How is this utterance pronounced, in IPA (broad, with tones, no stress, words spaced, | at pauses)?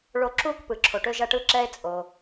ɭo˧ǁuː˥k pɯ˩ǁʰo˩ʈø˧ ʒɐ˧ʈɯ˧ǁɛ˧e̯ t͡sʼo˩